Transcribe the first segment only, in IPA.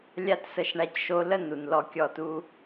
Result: lʲ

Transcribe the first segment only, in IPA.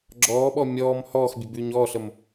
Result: ɡ͡ǁ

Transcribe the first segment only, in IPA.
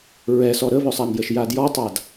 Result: ɹ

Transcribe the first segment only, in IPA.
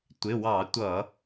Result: tʷ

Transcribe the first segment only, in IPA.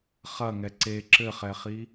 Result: χ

